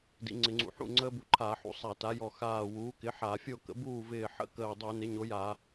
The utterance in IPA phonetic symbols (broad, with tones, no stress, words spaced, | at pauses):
dḭ˩˥ŋ͡ǀɪ˧˩˧ŋ͡ǀṵ˧˩˧ ħṵ˧˩ ŋ͡ǀəː˦˥bu˧˩ǃʰaː˧˩˧ħṵ˧˩˧ sˤa˧˩˧ta˩˥jɔ˧˩ xaː˧˩ wuː˩˥kɪ˩˥ħa˧˩˧fʲo˥˩ kə̰˩˥ buː˥˩vɪː˧˩ ħə̰˥˩kəː˧˩dˤu˧˩˧ nɪ˩˥ɲo˩˥ja˧˩˧